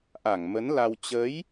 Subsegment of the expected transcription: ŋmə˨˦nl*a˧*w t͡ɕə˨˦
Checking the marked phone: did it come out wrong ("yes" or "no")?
no